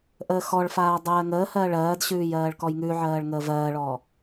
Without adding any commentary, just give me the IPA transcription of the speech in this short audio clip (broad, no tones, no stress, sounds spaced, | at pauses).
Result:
ʔ əː x ɔ ɭ f aː dˤ ɜː ŋ əː h ɜː ɭ ɜː d ɕ ʉː j ɜː ɭ k ɔ j ŋ ʉ ʕ ɜː ɭ ŋ əː v ɜː ɭ ɔ